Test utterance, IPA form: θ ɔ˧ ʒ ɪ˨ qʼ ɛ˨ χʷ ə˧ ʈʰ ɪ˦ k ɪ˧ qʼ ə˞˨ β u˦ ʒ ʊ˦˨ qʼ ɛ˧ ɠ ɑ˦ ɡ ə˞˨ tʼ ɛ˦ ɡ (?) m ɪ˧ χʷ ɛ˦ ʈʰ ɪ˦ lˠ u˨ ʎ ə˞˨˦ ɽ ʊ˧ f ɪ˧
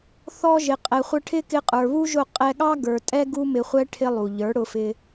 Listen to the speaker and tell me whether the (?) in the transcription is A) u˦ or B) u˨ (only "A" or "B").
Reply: A